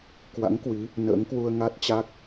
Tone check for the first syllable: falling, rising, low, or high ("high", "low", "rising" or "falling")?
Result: rising